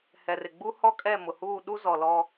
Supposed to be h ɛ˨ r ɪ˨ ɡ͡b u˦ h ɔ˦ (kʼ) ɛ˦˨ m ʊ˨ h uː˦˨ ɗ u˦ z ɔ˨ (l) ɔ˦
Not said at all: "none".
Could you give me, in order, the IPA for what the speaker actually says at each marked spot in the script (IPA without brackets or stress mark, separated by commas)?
kʼ, l